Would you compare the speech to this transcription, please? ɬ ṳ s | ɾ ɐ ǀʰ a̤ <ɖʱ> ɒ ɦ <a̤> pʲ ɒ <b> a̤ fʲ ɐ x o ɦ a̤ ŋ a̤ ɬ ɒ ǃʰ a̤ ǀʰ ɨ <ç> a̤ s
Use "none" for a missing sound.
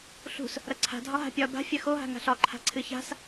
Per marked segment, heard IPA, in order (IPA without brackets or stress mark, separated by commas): dʱ, a̤, b, ç